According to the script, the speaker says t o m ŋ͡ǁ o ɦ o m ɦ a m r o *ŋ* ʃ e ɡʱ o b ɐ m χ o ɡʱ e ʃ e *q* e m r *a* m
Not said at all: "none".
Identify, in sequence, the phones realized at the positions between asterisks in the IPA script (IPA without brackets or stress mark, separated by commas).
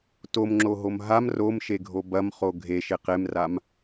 m, q, a